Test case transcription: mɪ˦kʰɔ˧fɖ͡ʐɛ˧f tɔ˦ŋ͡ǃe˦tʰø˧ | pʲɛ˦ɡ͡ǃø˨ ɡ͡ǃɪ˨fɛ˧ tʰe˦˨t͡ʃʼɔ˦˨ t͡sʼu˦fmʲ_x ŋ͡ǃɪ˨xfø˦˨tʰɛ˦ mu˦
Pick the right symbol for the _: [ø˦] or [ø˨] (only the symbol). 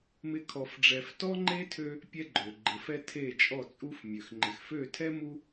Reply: ø˨